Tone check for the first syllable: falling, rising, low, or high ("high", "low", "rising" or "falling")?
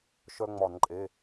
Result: high